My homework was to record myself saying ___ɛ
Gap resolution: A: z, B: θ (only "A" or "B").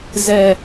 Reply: A